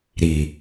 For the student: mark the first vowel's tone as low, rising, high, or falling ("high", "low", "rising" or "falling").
low